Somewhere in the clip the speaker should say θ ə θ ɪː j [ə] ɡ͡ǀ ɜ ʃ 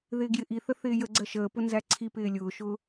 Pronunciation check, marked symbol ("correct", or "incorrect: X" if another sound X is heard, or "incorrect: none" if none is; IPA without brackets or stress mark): correct